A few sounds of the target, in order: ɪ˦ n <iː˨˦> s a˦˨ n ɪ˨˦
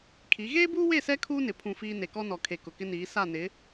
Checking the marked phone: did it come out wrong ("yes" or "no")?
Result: no